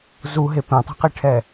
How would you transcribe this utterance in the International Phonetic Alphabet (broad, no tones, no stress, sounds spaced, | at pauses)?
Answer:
z u ɦ e p ẽ tˤ ɛ̤ q i ʈʰ ɛ